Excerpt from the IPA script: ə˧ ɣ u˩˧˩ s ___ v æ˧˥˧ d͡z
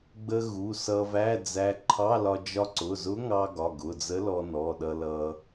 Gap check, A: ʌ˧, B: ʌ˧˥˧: A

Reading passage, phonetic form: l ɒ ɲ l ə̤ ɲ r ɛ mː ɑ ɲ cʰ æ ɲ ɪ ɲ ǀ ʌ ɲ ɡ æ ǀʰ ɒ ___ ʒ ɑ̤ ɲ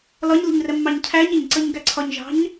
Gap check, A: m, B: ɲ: B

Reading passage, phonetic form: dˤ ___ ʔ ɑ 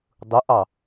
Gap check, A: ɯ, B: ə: A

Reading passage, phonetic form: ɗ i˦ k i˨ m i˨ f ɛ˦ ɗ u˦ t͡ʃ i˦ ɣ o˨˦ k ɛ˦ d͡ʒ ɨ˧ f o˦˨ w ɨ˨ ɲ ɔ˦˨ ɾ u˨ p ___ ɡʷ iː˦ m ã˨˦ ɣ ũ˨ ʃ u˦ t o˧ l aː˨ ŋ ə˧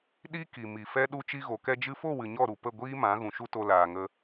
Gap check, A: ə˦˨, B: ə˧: A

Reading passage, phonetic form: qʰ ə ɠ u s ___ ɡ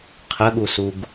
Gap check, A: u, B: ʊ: A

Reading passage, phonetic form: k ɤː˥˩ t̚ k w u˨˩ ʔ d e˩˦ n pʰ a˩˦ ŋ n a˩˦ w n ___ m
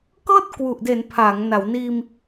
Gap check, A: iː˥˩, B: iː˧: B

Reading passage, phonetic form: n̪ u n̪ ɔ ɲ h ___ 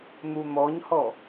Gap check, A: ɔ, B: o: A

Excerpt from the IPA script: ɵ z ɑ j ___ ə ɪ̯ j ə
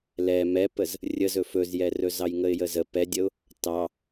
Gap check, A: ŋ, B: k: A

